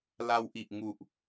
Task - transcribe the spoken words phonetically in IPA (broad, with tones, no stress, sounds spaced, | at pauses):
l a˧ w ʔ i˨˩ ʔ ŋ u˨˩ ʔ